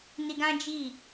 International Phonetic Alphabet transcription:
ni˧ɡã˦ d͡ʒi˦˨

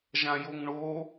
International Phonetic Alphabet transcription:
ʒãjoŋɳo

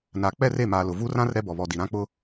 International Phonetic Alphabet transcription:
na˨ k͡pɛ˦˨re˦˨maː˨ lʊ˨ vu˦rã˦r ɾɛ˦bɔ˨ βɔ˨ di˨ ɾã˦k͡pʊ˦

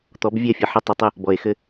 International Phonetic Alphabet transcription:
t̪ɔ˨˦bvʲɛ˦˨fʲɐ˨ħɐ˦ tˤʏ˨tˤɘ˦ | bɔ˨e̯xɘ˦

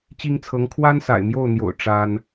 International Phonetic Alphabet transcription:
t͡ɕi˥ŋt͡sʰɤ˧˥ŋ kʰwa˥nsa̰˨˩ɪ̯mjo˥˩ʊ̯n̪jo̰˨˩ʊ̯ ʈ͡ʂa˥n

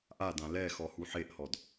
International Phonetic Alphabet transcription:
ʔadã lɛ xɔhuħeʔhɔd

